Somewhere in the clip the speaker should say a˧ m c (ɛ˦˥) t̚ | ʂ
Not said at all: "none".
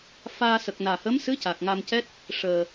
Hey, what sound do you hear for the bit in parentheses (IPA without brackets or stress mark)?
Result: ɛ˦˥